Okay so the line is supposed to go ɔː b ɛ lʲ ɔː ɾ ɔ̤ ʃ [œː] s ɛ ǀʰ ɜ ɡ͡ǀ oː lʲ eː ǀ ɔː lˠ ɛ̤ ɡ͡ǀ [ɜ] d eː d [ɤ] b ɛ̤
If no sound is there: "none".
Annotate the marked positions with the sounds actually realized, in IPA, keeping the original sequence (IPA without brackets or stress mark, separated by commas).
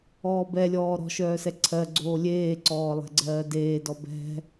œː, ɜː, ɔ